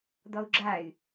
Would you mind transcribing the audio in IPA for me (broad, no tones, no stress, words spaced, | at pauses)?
d̪ɔu̯ɡ͡ǁay̯